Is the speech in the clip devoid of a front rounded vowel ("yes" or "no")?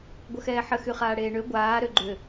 no